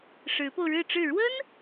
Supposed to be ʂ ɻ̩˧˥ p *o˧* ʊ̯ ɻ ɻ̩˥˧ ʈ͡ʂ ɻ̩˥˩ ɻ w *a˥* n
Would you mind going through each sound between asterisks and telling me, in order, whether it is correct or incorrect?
correct, incorrect: ə˥

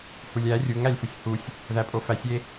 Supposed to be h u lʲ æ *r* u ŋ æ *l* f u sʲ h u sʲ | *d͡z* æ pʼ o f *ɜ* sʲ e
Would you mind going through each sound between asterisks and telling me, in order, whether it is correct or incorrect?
incorrect: rʲ, incorrect: lʲ, incorrect: ð, incorrect: æ

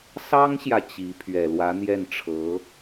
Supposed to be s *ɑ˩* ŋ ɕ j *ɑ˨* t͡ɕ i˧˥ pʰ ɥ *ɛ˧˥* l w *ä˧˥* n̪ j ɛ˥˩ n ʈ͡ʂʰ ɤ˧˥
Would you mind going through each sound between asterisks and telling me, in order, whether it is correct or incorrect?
incorrect: ɑ˥, incorrect: ä˨, incorrect: ɛ˨˩, correct

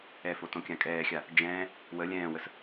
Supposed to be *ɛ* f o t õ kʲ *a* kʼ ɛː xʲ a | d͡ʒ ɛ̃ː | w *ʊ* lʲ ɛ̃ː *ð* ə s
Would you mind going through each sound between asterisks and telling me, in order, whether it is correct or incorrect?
correct, incorrect: ã, incorrect: ə, incorrect: w

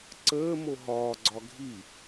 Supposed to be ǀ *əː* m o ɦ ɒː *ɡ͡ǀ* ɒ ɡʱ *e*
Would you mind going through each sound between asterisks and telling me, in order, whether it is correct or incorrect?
correct, correct, incorrect: i

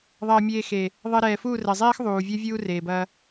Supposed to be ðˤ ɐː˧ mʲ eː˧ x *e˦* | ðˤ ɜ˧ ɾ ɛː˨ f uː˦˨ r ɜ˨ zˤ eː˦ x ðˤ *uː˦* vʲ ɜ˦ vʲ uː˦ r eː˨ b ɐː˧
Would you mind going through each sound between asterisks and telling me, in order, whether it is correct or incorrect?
incorrect: e˨, incorrect: uː˨

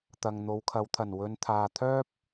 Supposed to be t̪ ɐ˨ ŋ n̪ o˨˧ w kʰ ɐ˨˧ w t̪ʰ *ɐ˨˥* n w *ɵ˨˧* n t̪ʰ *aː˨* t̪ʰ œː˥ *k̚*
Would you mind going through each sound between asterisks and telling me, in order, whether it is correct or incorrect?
incorrect: ɐ˨˩, correct, correct, incorrect: p̚

